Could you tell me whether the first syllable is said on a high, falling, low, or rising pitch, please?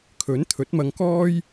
rising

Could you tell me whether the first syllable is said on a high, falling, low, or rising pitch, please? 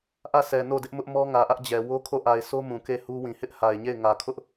falling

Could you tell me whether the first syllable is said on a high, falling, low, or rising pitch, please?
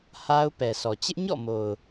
high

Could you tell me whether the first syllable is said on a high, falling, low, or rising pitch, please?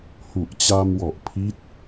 low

